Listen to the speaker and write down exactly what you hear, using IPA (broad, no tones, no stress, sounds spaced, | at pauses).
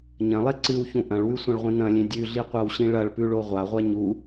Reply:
ɲ ɐ̃ lˠ e ǀ ɨ w ç ũ ʔ ɐ̃ ɭ w ʉ sʷ ɐ̃ ɭ ʁʷ ĩ n ɐ̃ lʲ ẽ dʲ ʉ ɮ i qʷ a w ɕ ĩ ɭ ɐ ɭ p ʉ ɭ o ʁʷ a ʁʷ a ɲ u